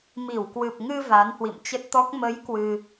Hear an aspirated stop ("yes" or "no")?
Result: no